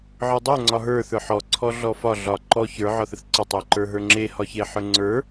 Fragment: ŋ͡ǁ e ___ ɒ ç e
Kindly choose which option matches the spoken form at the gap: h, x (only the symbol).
h